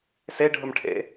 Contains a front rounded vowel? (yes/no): no